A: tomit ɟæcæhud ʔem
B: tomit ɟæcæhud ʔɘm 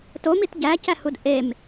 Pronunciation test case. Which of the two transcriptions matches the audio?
A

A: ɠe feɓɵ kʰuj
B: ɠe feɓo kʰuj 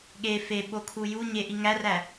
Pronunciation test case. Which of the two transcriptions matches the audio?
B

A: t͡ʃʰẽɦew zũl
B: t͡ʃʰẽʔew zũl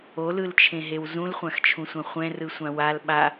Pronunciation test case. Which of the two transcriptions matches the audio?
A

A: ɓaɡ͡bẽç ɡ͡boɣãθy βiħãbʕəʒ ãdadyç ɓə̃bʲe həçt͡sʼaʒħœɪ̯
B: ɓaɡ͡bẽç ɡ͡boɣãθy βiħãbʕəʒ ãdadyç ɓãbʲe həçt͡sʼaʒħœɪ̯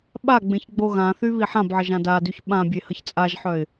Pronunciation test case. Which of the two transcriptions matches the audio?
B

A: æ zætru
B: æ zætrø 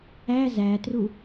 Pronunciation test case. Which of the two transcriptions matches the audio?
A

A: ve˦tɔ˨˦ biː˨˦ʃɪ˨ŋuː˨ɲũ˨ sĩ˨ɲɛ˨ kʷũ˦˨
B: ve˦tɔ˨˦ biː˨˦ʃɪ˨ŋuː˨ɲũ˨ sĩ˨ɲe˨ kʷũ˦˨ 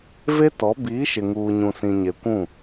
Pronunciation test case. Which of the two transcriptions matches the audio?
B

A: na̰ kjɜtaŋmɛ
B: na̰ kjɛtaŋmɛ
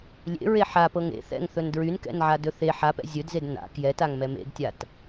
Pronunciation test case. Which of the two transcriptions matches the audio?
B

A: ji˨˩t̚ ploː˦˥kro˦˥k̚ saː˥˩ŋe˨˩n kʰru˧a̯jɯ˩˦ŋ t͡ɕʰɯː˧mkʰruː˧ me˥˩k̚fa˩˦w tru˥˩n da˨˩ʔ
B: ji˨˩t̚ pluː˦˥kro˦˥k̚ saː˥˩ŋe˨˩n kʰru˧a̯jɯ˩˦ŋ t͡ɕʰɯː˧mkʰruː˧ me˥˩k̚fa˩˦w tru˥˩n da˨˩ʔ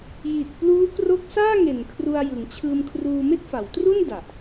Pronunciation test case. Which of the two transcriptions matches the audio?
B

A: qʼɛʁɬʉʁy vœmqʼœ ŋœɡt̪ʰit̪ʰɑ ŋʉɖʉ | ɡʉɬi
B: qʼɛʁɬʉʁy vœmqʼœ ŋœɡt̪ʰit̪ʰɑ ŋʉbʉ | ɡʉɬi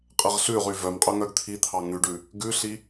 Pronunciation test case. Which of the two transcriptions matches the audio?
A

